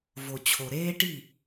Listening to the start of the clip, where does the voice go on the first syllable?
low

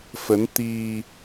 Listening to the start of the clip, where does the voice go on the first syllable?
rising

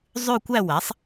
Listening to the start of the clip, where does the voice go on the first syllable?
falling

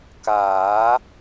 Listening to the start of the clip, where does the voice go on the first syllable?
rising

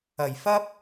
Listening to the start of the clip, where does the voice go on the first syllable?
low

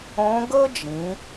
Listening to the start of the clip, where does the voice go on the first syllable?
rising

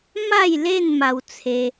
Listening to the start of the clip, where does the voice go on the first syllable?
falling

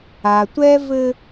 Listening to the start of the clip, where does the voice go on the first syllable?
low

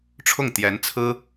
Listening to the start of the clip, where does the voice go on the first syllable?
falling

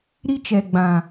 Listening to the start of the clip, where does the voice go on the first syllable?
high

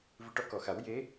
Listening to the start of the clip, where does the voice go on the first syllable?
rising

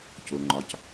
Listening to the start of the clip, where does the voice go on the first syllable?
low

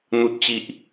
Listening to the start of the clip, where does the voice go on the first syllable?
low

